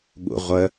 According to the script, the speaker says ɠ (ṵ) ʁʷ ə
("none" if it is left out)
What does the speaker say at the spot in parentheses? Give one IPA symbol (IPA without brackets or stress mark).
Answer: ṵ